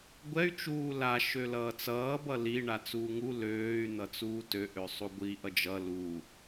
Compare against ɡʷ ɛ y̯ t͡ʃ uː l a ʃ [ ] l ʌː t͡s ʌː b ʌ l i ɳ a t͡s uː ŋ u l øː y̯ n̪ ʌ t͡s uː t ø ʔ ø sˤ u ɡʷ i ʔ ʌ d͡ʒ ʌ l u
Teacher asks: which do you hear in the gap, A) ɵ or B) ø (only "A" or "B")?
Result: B